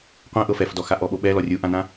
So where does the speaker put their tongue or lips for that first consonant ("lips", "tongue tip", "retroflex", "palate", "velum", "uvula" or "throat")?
uvula